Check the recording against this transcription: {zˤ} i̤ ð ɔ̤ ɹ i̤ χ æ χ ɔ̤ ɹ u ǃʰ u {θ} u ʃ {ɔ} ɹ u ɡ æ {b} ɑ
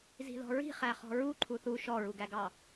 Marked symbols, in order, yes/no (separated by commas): no, yes, yes, no